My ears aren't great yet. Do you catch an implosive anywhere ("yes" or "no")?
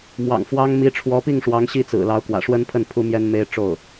no